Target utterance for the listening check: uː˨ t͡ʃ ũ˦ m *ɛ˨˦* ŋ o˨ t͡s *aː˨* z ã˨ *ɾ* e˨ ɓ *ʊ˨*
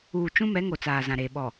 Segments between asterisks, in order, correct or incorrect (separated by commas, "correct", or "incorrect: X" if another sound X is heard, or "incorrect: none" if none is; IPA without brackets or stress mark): correct, correct, correct, incorrect: ɔ˨